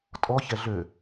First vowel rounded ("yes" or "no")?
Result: yes